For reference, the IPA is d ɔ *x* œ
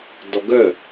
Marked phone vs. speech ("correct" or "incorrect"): incorrect